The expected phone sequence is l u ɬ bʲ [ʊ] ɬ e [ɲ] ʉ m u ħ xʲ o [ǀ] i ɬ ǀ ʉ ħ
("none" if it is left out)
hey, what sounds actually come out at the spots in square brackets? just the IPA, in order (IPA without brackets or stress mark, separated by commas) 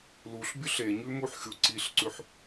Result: ɵ, ɲ, ǀ